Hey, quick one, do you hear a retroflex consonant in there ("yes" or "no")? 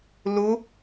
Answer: no